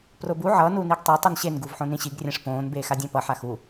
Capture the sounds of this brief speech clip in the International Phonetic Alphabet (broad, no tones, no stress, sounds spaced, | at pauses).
p r o b u ʕ ʌː n u n i ɡ tˤ e tˤ i n ɕ e n ɡ u v ħ õ n ĩ ɕ i ɡ rʲ ɛ̃ ʂ p õː n b eː x a dʲ ɛ̃ p ʌ ħ a x u